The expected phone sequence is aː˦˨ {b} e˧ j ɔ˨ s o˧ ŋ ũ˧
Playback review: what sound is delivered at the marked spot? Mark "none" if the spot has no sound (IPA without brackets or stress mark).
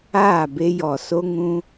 b